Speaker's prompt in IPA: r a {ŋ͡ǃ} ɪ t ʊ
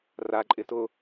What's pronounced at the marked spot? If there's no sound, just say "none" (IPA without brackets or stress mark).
ǃʼ